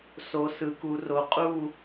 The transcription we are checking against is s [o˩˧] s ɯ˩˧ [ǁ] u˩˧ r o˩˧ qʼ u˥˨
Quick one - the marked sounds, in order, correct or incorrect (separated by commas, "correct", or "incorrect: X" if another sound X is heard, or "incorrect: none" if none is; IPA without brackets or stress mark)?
correct, incorrect: k